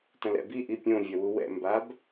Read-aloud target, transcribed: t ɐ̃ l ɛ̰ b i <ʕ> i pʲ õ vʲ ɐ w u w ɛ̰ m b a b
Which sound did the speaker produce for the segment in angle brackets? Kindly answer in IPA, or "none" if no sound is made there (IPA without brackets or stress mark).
ʔ